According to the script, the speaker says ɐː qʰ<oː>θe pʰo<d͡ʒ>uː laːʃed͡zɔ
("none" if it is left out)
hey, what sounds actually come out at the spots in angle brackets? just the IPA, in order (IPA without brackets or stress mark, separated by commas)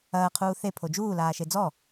uː, d͡ʒ